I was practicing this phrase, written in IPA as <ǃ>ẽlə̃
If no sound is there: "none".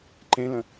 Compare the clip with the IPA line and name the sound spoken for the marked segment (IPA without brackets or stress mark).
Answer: ǃ